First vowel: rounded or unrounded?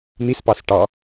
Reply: unrounded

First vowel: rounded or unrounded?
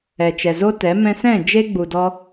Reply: unrounded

